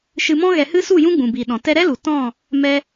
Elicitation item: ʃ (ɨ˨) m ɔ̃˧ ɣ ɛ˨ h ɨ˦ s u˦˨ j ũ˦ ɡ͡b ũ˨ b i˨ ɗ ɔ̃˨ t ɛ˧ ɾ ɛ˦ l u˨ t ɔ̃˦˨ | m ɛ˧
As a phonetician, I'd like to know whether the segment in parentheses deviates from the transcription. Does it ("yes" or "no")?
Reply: no